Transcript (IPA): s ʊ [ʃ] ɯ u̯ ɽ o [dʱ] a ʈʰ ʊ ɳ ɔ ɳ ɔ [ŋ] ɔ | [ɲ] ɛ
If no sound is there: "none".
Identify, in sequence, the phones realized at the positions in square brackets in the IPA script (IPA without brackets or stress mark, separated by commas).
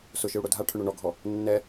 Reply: ʃ, dʱ, ɡʱ, nː